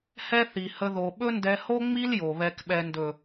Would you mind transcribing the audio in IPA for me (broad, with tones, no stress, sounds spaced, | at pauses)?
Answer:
h ɛ˦ θ i˨ h ə˧ ð o˨ ɓ ɵ˦ n d ɛ˧ h o˦ ŋ͡m i˦ l j o˨ β ɛ˨ k ɓ ɛ˨ n d ɵ˨